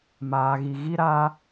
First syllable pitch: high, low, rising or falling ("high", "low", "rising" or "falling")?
low